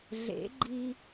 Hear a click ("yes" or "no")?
yes